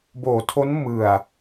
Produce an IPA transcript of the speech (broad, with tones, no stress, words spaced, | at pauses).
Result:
boː˩˦tʰo˦˥n mɯ˨˩a̯